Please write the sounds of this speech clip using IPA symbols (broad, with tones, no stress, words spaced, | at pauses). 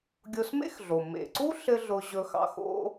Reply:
ɡʲo˧smḛ˥xɮo˩ mḛ˩ǀu˥ ɬɘ˥ɮʊ˧ʑɵ˧xɑ̰˧ xo̰˧